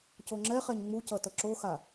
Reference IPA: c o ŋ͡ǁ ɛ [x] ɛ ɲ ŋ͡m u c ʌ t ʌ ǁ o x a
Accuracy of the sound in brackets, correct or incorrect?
incorrect